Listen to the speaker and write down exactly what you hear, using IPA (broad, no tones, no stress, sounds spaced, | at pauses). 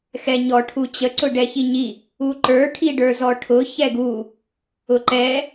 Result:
x ɛ ɲ ɔ ʈʰ u t͡ɕ ə ǀ ʊ ɖ ɛ ç i ɲ i | u ǃ ə˞ ʈʰ i ɖ ə˞ z ɔ ʈʰ ʊ ç ɛ ɡ u | ʊ ǃ ɛ